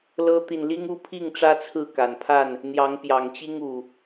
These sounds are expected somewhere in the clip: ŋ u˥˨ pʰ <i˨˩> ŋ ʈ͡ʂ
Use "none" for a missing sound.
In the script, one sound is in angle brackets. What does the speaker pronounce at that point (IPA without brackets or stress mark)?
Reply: i˥˨